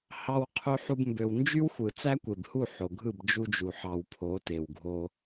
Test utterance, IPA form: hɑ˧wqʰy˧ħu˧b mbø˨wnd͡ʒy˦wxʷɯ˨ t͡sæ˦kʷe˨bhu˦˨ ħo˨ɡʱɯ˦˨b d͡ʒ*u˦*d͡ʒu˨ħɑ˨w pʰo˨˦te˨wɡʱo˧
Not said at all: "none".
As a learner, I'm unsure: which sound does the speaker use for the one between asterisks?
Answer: u˧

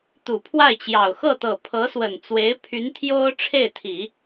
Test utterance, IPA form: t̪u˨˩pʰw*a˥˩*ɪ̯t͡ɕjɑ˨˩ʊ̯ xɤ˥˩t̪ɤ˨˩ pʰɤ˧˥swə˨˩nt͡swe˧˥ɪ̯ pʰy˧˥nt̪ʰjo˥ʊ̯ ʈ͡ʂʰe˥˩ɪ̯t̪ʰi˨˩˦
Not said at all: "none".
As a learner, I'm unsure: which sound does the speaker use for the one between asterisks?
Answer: a˥˩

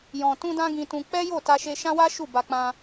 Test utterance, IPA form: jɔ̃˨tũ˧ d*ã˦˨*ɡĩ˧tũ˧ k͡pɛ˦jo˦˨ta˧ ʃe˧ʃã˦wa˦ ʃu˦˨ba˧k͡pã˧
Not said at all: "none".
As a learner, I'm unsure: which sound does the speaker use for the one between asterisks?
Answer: ã˦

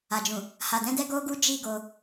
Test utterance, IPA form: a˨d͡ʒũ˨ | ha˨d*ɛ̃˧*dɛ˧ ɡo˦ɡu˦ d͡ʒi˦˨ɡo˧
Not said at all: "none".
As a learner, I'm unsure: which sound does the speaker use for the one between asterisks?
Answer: ɛ̃˧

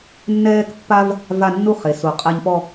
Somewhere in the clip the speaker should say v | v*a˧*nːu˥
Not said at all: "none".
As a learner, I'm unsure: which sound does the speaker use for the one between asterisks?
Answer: a˥˧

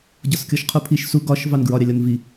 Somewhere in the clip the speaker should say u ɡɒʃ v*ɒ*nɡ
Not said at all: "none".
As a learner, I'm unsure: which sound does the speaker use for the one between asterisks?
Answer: ɑ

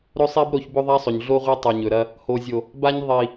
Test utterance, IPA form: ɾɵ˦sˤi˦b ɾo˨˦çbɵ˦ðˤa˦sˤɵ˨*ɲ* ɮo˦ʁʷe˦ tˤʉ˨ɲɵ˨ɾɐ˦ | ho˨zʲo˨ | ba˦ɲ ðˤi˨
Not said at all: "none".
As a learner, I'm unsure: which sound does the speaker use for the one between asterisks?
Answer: ɲ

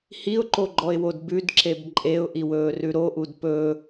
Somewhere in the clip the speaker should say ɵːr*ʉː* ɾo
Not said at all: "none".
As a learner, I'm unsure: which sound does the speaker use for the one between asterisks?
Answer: ʉ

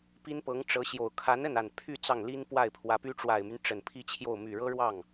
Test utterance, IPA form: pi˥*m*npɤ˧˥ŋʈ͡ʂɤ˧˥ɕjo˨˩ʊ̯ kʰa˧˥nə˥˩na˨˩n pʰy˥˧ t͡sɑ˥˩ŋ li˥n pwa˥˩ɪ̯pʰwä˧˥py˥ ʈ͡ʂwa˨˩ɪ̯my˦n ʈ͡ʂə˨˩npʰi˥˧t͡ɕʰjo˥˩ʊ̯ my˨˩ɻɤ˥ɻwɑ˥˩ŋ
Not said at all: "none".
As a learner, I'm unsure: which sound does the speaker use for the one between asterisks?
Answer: none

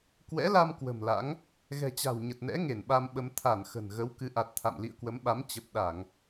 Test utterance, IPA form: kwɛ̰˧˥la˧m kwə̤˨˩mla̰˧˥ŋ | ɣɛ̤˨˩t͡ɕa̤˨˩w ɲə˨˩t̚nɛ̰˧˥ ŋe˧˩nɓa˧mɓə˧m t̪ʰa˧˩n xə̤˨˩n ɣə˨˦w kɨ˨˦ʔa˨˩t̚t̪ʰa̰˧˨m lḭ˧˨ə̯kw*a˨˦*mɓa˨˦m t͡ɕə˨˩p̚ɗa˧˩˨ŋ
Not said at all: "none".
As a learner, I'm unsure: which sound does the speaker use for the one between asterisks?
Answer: ə˨˦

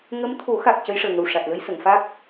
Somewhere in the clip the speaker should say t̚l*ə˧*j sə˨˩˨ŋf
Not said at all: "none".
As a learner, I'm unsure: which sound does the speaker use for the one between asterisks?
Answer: ə˧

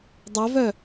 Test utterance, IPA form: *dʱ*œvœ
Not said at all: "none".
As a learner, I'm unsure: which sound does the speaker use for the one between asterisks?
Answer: dˤ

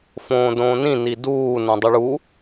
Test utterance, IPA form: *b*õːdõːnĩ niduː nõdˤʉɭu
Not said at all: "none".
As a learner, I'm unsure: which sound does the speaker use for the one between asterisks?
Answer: f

